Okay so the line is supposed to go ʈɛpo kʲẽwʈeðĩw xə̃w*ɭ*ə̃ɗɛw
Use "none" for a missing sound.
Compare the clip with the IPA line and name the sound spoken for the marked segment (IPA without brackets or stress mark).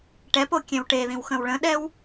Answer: ɭ